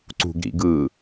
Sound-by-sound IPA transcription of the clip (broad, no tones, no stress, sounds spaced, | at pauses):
ǀ ṳ ɡ ɾ ḭ ɡ ɯː